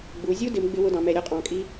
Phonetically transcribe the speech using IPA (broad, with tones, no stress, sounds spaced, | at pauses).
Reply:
ɡ͡b u˩˧ zʲ u˥ d ɪ˩˧ m ɡ͡b ɪ˥ w ʊ˥ d ɑ̃˩˧ m ɛ˩˧ ɾʲ ɔ˥ qʼ ɑ̃˩˧ kʼ i˥